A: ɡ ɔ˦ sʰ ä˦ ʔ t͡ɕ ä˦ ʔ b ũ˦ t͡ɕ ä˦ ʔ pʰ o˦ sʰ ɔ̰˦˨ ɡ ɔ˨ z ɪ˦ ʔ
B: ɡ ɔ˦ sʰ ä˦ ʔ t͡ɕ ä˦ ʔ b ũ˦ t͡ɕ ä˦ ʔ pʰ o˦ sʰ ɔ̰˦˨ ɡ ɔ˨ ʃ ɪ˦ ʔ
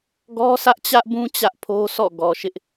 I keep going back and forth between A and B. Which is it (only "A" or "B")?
B